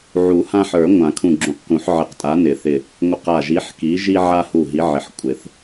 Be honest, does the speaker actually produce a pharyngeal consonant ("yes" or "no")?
yes